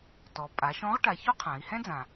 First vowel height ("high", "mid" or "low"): mid